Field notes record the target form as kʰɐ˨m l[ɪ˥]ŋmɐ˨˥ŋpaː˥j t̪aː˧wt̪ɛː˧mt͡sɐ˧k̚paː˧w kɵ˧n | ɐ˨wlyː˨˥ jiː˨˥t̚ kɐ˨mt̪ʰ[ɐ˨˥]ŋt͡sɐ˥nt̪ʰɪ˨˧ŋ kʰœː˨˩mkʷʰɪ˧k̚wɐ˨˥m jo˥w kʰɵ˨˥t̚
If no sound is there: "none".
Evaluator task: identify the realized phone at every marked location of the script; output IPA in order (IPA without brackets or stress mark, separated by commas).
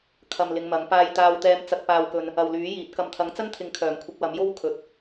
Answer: ɪ˨˧, ɐ˨˥